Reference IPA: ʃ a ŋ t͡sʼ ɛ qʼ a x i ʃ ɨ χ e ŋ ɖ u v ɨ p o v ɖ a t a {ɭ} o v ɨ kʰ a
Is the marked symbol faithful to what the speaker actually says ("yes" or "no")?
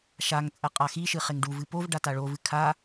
yes